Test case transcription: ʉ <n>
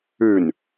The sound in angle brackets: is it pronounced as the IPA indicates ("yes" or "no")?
yes